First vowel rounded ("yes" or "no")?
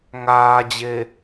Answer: no